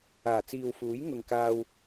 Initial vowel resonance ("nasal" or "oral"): oral